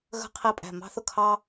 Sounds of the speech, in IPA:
ɣə̤˥qʰi˥˨pʼæ̤˥˨ mɑ̤˥θʊ˥˨kʰɑ˥

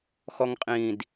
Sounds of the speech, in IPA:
xɔŋqʼĩd

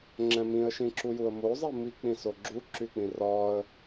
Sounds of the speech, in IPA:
ŋ͡ǁɛ̃mĩə̯ ʃĩǁujuə̯mo zˤimi k͡pĩsoɡ͡ǁu ǁyk͡pĩrɒə̯

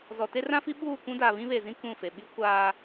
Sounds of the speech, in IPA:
zɔ˨te˦rã˦fi˦ ɓuː˦˨kʷũ˦ daː˨βĩ˦βe˨zĩ˦ kũ˦˨fe˨ ɓi˦ kʷaː˦

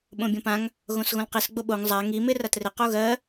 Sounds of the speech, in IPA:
ɓõbʲõpãŋ | ɣõsɣõlqis ɡ͡boɓoŋ zˤa ŋi mɪ ratrɪ qoɣɜ

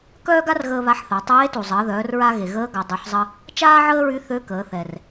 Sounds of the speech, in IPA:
kœː˥ɡa˥rɣəː˧ βa˧˥ħθa˩˧ tˤeː˧˥tu˩zˤəː˩˧ ðœː˩˧rɹa˧ ɣe˩ɣəː˧˥ ɡa˩˧dˤø˩˧ħzˤə˧ | t͡ʃaː˥ʕəː˥ɹy˧˥ θø˧˥kəː˩˧θɛ˩r

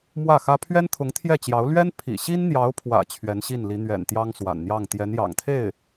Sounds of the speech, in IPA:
mwä˥˩xä˥ pʰɥɛ˥nt̪ʰʊ˧˥ŋ t̪ʰjɛ˥˩t͡ɕjɑ˧˥ʊ̯ lɥɛ˥n pʰḭ˨˩ ɕi˥nn̪jɑ˧˥ʊ̯pʰwä̰˨˩ t͡ɕʰɥɛ˧˥nɕi˥˩nli˧˥ n̪ɥɛ̰˨˩n t̪jɑ˥ŋswa̰˨˩nn̪jɑ˥˩ŋ t̪jɛ˧˥njɑ̰˨˩ŋt̪ʰe˥˩ɪ̯

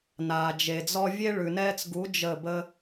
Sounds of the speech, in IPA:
naː˨d͡ʒe˨ d͡zɔ˧vʲe˦ ɭʉ˨nɛː˧t͡sɡu˨˦ d͡ʒə˦˨bə˦

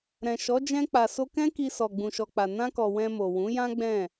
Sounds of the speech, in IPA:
ɾɛ̃˨ʃɔ˨˦ d͡ʒɛ̃˧k͡pa˨so˧kɛ̃˦ ki˧sɔ˨ ɡ͡bũ˨ʃɔ˨k͡pa˨ nã˧kɔ˨ wɛ̃˧mo˨ wũ˨˦jã˦ɡ͡bɛ̃˦˨

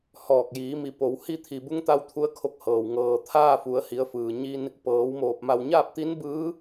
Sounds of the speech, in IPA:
hɔː˧˩k̚jiː˩˧mi˩˧ po˩˧w hi˧t̪ʰi˩bu˧ŋt̪a˧w t̪ʰu˧˥ə̯kʰo˧k̚hɤː˩w ŋɤː˩ t̪ʰaː˥˨fu˩˧ə̯ hi˩˧ə̯fɯː˩ ɲi˧n | pɤː˩˧wmoː˧˩p̚ ma˧˩wɲaː˥˨p̚t̪i˧˥n bɯː˧˥

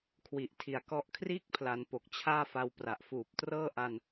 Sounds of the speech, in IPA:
kʰwi˨˩ʔtʰi˨˩a̯kɔ˦˥ʔ kʰriː˥˩k̚pʰla˩˦n po˨˩k̚ t͡ɕʰaː˥˩fa˧wpra˨˩ʔ fuː˨˩p̚trɤː˥˩ ʔa˧n

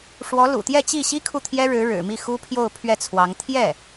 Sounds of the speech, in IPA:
ʂwɔ˧˥ lṵ˨˩t̪jɛ˥˧t͡ɕi˥˩ɕi˥ kʰu˥˩t̪ʰjɛ˥ɻɻ̩˧˥ ɻɻ̩˨˩mi˥˩xu˥ pʰjo˥˧ʊ̯ pʰɥɛ˥˩t͡sʰwɑ˧˥ŋ t̪ʰjɛ˥˩

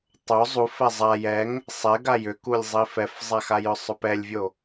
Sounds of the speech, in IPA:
tˤo zˤufɛ zˤa jɛŋ | sˤɛɡa jʏkulʲzˤi fɛfzˤaxajʏ sˤʏpɛlʲvʲo

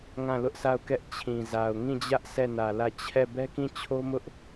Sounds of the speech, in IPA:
ŋã˦˨lʊ˦ʔsa˦˨ʊ̯kɛ˦ʔ t͡ɕʰĩ˨za˨ʊ̯ ŋĩ˦˨d͡ʑä˦ʔ sɛ˦˨nä˨lä˦˨ t͡ɕʰɛ˦˨ bɛ˦kĩ˦˨t͡ɕʰo˦mʊ˦ʔ

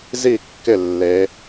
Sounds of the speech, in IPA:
zi˥˩kːɪ˥˩ lːe˧˥

